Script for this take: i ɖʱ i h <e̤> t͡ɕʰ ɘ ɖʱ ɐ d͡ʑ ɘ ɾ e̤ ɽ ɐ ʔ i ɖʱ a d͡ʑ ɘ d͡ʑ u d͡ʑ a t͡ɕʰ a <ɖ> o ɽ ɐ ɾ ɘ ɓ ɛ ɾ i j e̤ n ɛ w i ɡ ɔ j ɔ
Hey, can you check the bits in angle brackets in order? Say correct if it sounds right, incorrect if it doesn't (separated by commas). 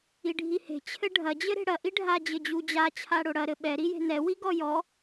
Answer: correct, incorrect